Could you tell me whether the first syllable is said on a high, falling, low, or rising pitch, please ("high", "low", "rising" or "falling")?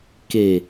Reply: low